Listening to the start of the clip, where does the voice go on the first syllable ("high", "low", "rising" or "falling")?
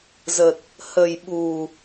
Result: low